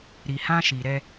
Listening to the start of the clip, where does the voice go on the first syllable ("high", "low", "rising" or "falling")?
low